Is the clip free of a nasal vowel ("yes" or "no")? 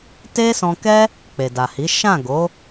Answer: no